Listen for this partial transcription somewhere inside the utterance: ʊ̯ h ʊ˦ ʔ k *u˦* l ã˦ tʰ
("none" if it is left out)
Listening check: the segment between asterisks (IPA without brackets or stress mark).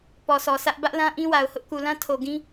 u˨